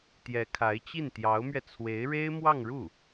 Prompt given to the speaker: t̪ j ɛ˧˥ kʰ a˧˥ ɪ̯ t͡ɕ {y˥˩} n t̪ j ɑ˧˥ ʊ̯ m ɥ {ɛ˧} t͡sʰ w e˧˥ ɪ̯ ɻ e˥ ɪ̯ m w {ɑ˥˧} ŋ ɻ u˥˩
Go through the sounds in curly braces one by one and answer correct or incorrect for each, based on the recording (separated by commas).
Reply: incorrect, correct, correct